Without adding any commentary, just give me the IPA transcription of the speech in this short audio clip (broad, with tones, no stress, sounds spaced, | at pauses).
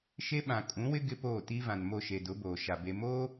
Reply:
ʃ e˦ ɓ ã˨ kʼ ũ˨˦ w ɪ˦ ɡ ɪ˦ p oː˦˨ t i˦ v ã˨ n m o˦˨ ʃ e˨ d ʊ˨˦ b oː˨ ʃ a˨ b e˨ m oː˦